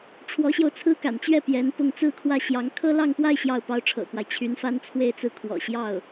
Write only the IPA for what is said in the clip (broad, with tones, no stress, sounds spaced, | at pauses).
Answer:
ʈ͡ʂʰ w ɔ˧˥ ɕ j o˧ ʊ̯ t͡sʰ ɹ̩˥ k a̰˨˩ n t͡ɕ ɥ ɛ˥˩ p j ɛ˧˥ n p ʊ˥˧ ŋ t͡s ɹ̩˥˧ kʰ w ä˥˩ ɕ j ɑ˧˥ ŋ kʰ ɤ˥ l ɑ˥˧ ŋ p w a˥˧ ɪ̯ ɕ j ɑ˥˩ ʊ̯ p ɑ˥ ʊ̯ ʈ͡ʂʰ ɤ̰˨˩ k w a˦ ɪ̯ t͡ɕʰ y˧˥ n f a˥ n t͡sʰ w e˥˧ ɪ̯ t͡s ɹ̩˥˩ kʰ w ɔ̰˨˩ ɕ j ɑ˥˩ ʊ̯